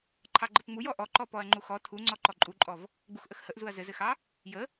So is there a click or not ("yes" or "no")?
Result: yes